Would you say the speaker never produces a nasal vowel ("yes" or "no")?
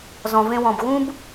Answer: no